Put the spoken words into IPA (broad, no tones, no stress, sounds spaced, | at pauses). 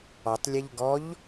ɔ tˤ lʲ e ʎ ɡ ɔ ʎ